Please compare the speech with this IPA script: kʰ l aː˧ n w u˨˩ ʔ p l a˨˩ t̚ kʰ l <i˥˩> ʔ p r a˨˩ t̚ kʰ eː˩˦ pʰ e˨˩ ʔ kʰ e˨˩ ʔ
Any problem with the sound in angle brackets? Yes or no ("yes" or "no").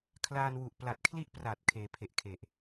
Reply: no